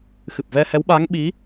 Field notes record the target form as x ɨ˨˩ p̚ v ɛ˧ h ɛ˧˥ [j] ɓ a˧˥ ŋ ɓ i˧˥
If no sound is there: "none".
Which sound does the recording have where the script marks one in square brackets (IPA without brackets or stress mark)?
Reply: w